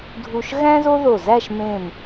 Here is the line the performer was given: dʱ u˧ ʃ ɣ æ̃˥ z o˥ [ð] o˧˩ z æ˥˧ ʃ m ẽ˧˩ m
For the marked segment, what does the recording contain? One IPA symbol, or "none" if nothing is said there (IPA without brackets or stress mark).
ð